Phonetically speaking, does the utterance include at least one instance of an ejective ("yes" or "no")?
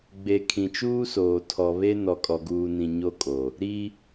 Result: yes